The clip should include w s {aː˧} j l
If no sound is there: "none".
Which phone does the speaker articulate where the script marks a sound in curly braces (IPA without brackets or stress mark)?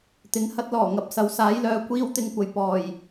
aː˨˥